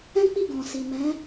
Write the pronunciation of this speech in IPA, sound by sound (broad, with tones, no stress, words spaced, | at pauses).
ɛ̃˦k͡pi˦˨ ɡɔ̃˨si˨ mɛ̃˨˦